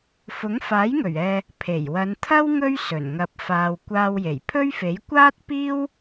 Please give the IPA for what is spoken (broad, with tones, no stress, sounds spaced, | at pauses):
f ʊ˨˥ ŋ f aː˨˥ j ŋ ɵ˨˩ ɥ ɛː˨ | pʰ e˨˩ j w ɐ˨˧ n t̪ʰ ɐ˥ w ŋ ɵ˥ ɥ s ɵ˨˩ n ŋ ɐ˨ p̚ f aː˨ w kʷ aː˧ w j e˨˩ j pʰ ɵ˥ ɥ f e˨˥ j kʷ aː˥ t̚ p iː˥ w